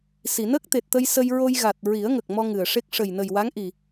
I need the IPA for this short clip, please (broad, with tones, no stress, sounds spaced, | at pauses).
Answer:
s i˨˩˨ n əː˦˥ k̚ t̪ e˨˩ t̚ t̪ ə˧ j s ə˧ j ɹ o˧ j ɣ a˨˩ t̚ ɹ i˨˩˦ ə̯ ŋ ə˨˩ k̚ m ɔ˧ ŋ ɨ˨˩ ə̯ ʂ e˦˥ k̚ ʂ ə˨˩ j n ə˨˩ j w a˧˥ ŋ ʔ i˨˩